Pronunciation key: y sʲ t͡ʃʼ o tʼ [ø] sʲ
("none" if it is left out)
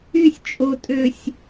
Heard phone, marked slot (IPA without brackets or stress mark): ø